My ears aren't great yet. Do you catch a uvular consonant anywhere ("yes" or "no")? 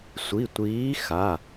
no